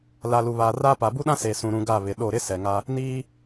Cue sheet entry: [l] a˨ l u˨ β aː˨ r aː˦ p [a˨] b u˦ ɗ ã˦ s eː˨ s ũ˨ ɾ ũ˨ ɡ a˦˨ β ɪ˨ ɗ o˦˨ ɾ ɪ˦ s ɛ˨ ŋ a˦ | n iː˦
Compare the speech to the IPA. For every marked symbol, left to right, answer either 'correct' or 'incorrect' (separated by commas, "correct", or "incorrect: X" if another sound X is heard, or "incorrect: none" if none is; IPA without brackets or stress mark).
correct, correct